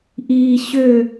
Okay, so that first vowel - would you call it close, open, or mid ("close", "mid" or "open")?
close